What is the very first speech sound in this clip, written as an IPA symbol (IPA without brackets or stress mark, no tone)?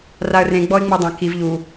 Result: r